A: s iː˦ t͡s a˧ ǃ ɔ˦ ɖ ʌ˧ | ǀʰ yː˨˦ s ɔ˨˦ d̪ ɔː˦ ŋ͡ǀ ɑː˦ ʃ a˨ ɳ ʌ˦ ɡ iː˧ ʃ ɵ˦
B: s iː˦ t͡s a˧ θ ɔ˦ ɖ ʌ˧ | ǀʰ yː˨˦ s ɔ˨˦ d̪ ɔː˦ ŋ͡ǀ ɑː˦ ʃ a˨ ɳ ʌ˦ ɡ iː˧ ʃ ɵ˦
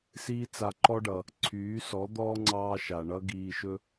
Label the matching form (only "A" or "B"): A